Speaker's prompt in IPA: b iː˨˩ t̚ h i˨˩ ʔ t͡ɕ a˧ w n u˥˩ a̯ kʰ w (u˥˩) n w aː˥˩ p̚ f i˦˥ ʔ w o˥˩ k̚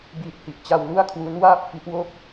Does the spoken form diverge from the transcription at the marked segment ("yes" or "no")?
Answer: yes